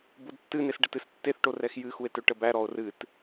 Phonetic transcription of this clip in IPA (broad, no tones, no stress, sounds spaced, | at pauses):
b o d tː ɨ n e s ɖ ə t ɨ s tː e θ ʈ o r ɛ x j ɨ x u e̯ t ɵ ʈ ə b æ ɾ ɔ o̯ r ɨ t